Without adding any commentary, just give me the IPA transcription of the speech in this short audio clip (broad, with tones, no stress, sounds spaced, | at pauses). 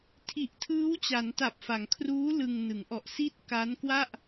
tʰ i˨˩ ʔ tʰ ɯː˦˥ w t͡ɕ a˩˦ n t a˨˩ p̚ f a˩˦ ŋ kʰ r uː˦˥ l ɯ˧ ŋ n ɯ˩˦ ŋ ʔ ɔ˨˩ ʔ s i˥˩ t̚ k a˦˥ n k w a˥˩ ʔ